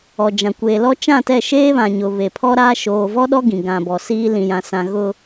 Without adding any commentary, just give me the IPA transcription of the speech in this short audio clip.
ɔ˨d͡ʒã˨ kʷeː˨lɔ˦ t͡ʃã˦˨tɛ˦˨ ʃeː˦βã˨ɲʊ˨ βe˨pʰɔ˦ɾaː˦ ʃoː˨vɔ˦ɗɔ˦ ɡĩ˨ɡã˨ bɔ˨siː˦ lĩ˨jã˨sã˨ ɣʊ˨

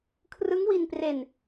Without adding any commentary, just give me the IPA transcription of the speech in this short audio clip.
kʰrɯ˦˥ŋwi˧npre˧n

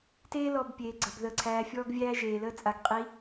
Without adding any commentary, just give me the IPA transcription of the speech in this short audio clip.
teː˦ lɔ˨b pʲeː˨ɡ͡ǀə˨b ðəː˨ǀʰæː˨fʲɔː˦ɡvʲæː˦ ʒeː˨ləː˦ t͡sʼa˨ɡqʼi˨˦

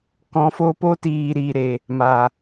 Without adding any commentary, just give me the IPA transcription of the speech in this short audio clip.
kɔ̃˨˦fo˧ po˦tiː˨ ɾiː˨ɾe˨ | ma˨

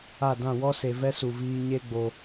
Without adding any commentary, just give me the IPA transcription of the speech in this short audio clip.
a˦˨ dã˦˨wɔ˦se˨ vɛ˦su˨viː˧ ɲe˦ɡ͡bo˧

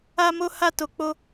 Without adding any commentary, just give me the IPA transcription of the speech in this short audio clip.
a˧mo˧ha˧ to˨k͡po˧

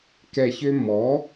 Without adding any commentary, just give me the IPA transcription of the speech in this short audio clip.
kɛ˨˩çø˧mːɔ˩˥

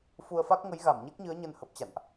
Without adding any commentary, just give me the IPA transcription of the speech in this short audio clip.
fu˧ə̯fa˦˥k̚ ŋə˨˦jɣa˧˩m ɲɛ˦˥k̚ɲɨ˨˦ə̯ɲə˧n hə˨˩p̚t͡ɕa̰˧˨nʔ

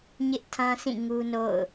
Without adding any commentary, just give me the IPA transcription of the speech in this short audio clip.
ɲɪ˦ʔ tʰã˦sʰĩ˦˨ ŋu˦no̰˦˨ʊ̯

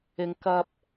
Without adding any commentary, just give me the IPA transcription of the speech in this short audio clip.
ɪ˨ŋkɐ˧p̚

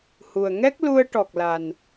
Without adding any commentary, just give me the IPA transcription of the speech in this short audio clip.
hu˨˩ə̯ŋɛ˦˥k̚ lu˧ə̯ʈɔ˨˩k̚la˨˩n

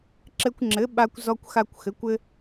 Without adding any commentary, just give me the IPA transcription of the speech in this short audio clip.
ǁɘ˧kʷŋ͡ǁɘ˩˥ ɓa˧kʷ zɔ˧kʷ xa˧kʷxɘ˩˥kʷ ɘ˧

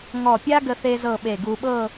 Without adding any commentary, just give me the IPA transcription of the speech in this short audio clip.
ŋɔ˧˩pʲa˥ ɡə˥θe˥zɤ˥˧ ɓe˧˩ɡu˧ɓɤ˥˧

